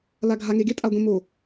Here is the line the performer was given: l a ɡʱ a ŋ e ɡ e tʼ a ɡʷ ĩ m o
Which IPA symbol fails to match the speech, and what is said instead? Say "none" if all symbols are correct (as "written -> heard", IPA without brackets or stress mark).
none